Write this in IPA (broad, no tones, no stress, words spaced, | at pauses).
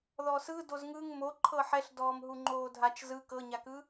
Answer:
ðɔsɯ dozŋɯŋ mo ǃʰɤħɛɬdɔːm ɦuŋ͡ǃoːdʱat͡ʃ zɯ kɤɲakɯ